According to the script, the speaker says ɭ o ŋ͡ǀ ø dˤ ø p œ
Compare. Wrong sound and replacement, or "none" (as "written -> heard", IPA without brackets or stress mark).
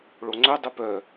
none